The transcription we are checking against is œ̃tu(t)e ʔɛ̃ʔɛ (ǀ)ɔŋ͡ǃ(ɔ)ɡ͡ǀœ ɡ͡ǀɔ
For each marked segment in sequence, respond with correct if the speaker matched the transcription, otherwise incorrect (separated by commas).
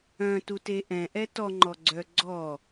correct, incorrect, correct